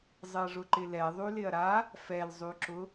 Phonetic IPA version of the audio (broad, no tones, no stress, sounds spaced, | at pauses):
zˤ ɪ ɐ̯ ʐ ʊ ǃ ɪ l ɛ ðˤ y l ɪ ɐ̯ ɾ a | f ɛ l zˤ y ǁ ʊ